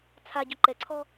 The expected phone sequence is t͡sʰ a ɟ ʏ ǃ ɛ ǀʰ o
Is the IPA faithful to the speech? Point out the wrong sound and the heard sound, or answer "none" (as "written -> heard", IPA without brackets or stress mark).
o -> ɔ